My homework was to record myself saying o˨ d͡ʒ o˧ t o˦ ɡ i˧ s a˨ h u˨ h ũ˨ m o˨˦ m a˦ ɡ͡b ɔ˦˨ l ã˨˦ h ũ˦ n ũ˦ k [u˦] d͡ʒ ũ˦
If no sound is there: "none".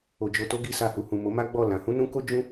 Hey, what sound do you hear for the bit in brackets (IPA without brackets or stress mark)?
o˦